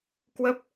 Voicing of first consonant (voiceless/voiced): voiceless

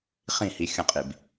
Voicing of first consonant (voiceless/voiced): voiceless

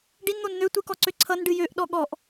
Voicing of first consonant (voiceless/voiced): voiced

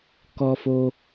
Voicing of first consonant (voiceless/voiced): voiceless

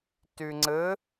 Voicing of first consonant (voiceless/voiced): voiceless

